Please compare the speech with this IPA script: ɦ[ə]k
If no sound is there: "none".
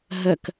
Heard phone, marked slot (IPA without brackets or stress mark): ə